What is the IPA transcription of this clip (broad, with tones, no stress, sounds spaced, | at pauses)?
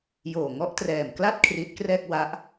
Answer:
j oː˨˩ ŋ ɔ˦˥ ʔ t r ɛː˨˩ m k l a˥˩ t̚ kʰ r iː˦˥ t̚ k r ɛː˥˩ k̚ w a˦˥ ʔ